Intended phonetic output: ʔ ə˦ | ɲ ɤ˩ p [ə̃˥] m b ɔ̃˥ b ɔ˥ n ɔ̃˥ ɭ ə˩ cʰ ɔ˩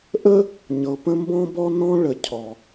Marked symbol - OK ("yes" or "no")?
yes